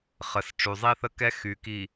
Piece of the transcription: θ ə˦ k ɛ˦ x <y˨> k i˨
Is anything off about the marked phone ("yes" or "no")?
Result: no